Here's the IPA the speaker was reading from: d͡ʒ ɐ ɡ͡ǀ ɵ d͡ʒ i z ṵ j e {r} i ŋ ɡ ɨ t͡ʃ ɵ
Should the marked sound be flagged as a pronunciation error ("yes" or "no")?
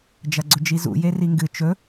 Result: no